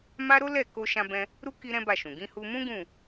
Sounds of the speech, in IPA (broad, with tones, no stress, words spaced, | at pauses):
ma˦ ɾo˦lɛ˦˨ ko˧ʃã˧bɛ̃˧ | ɾu˦ ki˦ɾɛ̃˦ba˦˨ʃũ˨ ɡĩ˧hu˧mũ˦ ɡũ˦˨